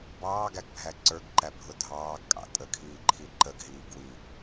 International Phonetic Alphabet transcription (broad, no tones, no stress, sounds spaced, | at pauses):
b ɑː ɡ æ ɡ bʱ æ ǀ ə˞ ɡ ǃ æ bʱ ʊ dʱ ɑː ɡ kʼ ɑ̰ tʼ ə kʰ iː ǃʰ i ǃ ə ɡ ɦ iː ɡ w i